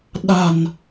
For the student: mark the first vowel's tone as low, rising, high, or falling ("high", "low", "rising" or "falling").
low